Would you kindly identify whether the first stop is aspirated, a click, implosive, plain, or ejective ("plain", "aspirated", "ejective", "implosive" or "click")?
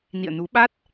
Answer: implosive